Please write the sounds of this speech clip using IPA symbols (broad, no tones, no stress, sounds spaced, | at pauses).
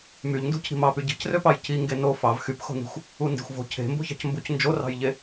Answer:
m y ʎ n d ṳ cʰ i̤ m ɑ p y ɟ i̤ c r ø p ɑ j c i ŋ ɡ e n o f ɑ v x y p x o̤ n i̤ xʷ | u n d e̤ xʷ v o̤ cʰ e̤ m b o̤ ç ɑ̤ c m b u c n d͡ʒ o r ɑ̤ j ʎ e